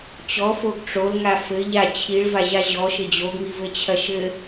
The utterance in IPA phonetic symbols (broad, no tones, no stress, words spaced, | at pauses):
t͡ɕɔfoɡ ʈ͡ʂolŋa fɘ ʎa t͡ɕʰiɭvaʑa ʑɔʃɘ d͡ʑoɡŋivɘt͡ɕʰɐ ʃɘ